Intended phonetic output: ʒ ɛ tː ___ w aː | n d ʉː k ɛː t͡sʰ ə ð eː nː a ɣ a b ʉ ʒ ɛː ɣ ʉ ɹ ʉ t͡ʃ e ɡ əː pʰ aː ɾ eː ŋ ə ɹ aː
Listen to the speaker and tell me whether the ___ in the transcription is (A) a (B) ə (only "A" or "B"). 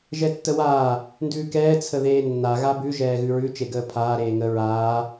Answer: B